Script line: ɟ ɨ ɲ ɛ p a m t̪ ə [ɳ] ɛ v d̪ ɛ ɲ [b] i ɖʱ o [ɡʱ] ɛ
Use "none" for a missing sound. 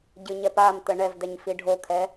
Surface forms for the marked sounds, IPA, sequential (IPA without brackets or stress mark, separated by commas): ɳ, f, kʰ